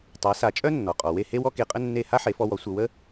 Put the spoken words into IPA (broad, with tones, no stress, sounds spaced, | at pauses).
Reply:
tˤ a˩˥ s a˩˥ t͡ʃʼ œ˥ nː ɔ˩ qʼ ɔ˩ w e˥˩ h e˥ w ɔ˥ k e˧ qʼ ə˥ nː e˥˩ h a˥ ħ e˩˥ f ɔ˧ w ɔ˩˥ sʷ ə˧ w ə˥